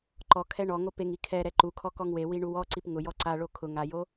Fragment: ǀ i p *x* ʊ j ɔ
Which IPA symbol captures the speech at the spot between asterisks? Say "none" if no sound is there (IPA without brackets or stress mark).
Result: ŋ